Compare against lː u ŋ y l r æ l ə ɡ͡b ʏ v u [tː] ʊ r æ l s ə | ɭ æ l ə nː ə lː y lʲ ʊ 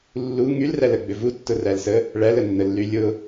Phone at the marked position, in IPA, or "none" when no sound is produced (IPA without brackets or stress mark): tː